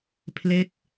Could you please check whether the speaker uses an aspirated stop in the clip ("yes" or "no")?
yes